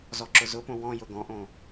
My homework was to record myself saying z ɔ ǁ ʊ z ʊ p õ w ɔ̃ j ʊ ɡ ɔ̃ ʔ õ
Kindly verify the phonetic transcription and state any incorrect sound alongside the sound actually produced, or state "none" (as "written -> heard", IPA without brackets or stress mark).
none